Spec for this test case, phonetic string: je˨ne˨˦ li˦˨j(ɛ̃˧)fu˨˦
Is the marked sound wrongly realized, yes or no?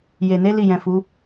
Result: yes